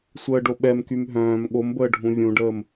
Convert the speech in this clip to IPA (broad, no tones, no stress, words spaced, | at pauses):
sʷəːɖoɓɛmkym ɦœ̃ːm ɠombəː ɖʱũvʲũɖəːm